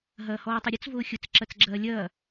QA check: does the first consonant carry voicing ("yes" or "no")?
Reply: yes